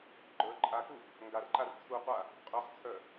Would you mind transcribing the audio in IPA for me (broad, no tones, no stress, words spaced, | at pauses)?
ɡ͡ǃə˞ ǃʼakub | ŋɡarǃar t͡sʰuqʷa | qʼœχt͡sʰœ